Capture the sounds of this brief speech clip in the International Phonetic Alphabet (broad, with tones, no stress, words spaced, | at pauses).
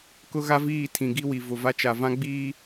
kʊ˦ɣa˦viː˦˨ tʰĩ˨ɡi˦wi˨ vʊ˨va˦t͡ʃa˨ vã˦ɡ͡biː˦